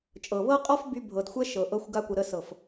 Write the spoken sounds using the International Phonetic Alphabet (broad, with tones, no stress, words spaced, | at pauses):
t͡ʃʼɤ˨βɤ˦qʼɔ˦f by˧bʱɤ˨dxʷɛ˦ ʃɤ˨ʔɤ˧xʷ ɡa˧kʷə˨ ɾə˧sɤ˨f